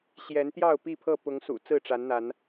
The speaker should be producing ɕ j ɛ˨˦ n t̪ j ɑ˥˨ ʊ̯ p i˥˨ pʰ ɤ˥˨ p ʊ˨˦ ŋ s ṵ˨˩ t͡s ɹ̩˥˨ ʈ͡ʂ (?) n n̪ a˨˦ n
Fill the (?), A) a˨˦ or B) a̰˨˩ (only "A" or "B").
A